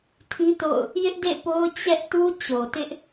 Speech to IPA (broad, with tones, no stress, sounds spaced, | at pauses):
tʰ ĩ˦ t o̰˦˨ ʊ̯ | j ɪ˦ ʔ d ḛ˦˨ p o˦ ʊ̯ t͡ɕ ɛ˦ ʔ t u˦ t͡ɕ o˨ t ɪ˦ ʔ